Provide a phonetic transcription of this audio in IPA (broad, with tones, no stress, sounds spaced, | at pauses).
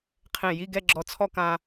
qʰ ẽ˧˩ j i˥˧ ɡ ɛ˥˧ ɡ͡ǁ ɔ˧ t͡sʰ ɔ˥˧ k ã˧